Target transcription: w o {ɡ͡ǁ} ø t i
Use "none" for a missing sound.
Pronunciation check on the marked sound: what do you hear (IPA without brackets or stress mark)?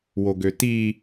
ɡ